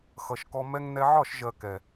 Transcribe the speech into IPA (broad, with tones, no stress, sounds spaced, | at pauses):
x ʌ˨ ʃ k ɔ˧ m ɛ˧ ŋ n ɛ˧ ʕ ɒ˦˨ ʃ ʒ ɜ˨ k ɛ˨